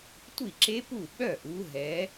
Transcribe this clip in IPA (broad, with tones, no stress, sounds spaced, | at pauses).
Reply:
tʷ i˥˩ ǁ e˦˥ p u˥˩ ɓ œ˥˩ ʔ u˨˦ ɦ ɛ˨˦